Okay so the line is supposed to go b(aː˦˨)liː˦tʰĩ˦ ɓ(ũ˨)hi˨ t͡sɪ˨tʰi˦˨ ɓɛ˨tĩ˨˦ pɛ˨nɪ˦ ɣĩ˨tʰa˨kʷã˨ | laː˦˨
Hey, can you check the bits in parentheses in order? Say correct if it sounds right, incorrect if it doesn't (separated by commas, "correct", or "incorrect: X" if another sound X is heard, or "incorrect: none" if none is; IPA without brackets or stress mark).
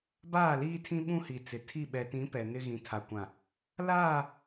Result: correct, incorrect: ũ˦